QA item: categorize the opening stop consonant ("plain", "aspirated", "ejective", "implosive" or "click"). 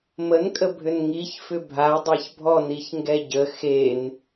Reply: ejective